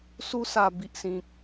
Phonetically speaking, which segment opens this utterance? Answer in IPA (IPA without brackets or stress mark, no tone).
s